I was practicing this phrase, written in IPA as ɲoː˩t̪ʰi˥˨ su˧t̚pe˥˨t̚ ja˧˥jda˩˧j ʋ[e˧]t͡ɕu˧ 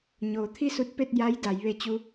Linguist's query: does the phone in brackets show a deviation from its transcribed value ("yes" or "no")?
yes